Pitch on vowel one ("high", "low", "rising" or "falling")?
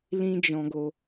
high